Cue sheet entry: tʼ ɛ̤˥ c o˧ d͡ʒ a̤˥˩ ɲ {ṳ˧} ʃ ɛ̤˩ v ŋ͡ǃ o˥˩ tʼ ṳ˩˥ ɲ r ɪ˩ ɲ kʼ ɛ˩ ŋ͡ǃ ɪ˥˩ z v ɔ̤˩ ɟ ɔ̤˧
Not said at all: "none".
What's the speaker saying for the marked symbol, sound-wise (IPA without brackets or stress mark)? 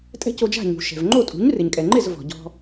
ṳ˩